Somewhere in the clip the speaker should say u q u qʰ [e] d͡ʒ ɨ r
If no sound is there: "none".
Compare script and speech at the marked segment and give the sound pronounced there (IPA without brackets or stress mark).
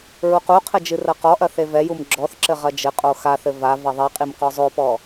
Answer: ɘ